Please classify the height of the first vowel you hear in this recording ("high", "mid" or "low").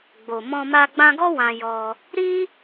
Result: mid